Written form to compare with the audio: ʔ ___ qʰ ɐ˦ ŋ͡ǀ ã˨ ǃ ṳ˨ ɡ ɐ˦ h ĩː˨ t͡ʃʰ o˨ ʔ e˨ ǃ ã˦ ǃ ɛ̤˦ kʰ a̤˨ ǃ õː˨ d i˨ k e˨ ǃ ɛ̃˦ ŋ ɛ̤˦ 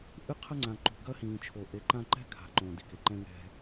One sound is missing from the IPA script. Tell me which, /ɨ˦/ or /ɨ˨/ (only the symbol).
ɨ˦